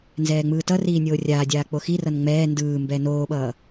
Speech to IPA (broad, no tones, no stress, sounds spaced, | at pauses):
n z ɛː ŋ͡m ɯː t ʌ r iː nʲ oː rʲ aː dʲ aː k͡p o x i r ʌ n ŋ͡m ɛː n d ɯː m b ɛ n oː ɓ ʌː